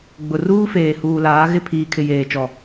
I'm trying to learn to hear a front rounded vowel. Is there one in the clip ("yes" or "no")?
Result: no